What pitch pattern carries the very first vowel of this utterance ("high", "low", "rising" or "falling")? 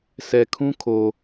low